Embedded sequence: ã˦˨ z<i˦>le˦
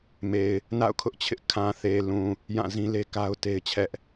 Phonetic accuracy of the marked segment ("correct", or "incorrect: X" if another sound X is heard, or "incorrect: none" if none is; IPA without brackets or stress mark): incorrect: ĩ˦